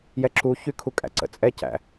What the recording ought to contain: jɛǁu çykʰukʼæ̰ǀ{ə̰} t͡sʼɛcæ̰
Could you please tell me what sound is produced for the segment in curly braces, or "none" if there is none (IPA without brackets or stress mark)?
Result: ə̰